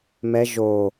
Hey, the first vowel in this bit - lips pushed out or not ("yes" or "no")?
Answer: no